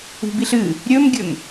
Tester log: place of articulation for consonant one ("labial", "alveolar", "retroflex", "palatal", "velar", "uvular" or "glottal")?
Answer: labial